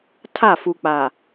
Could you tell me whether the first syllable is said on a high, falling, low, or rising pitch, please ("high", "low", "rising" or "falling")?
falling